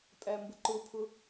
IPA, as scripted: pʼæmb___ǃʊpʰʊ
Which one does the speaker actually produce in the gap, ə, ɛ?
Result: ə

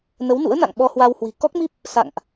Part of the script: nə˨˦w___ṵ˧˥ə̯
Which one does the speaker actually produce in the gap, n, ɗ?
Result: n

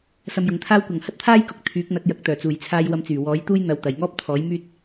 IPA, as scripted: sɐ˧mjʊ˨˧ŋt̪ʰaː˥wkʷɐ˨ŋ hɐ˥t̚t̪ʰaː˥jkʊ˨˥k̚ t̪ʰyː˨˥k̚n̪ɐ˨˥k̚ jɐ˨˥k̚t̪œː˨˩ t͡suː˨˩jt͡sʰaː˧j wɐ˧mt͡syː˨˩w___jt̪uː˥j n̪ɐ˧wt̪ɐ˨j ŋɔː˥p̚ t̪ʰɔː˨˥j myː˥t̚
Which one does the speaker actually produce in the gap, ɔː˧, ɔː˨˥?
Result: ɔː˨˥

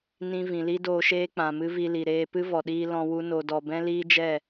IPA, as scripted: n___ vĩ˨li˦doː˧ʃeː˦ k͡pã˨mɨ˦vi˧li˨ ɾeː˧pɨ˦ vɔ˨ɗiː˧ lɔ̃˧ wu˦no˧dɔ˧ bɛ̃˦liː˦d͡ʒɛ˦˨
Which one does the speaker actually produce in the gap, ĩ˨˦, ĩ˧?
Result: ĩ˧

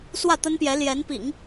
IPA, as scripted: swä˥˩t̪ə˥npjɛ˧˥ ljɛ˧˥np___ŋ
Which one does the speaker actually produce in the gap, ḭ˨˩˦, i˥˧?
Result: ḭ˨˩˦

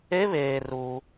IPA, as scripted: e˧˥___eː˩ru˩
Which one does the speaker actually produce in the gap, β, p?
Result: β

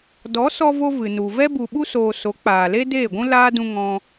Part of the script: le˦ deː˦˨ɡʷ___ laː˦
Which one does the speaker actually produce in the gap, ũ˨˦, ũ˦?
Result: ũ˦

